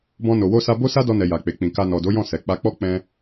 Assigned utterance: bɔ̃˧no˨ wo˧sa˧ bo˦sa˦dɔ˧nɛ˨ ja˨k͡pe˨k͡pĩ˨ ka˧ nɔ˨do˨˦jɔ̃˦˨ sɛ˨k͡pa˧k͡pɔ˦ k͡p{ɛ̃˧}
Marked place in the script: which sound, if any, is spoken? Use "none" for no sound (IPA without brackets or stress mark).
ɛ̃˧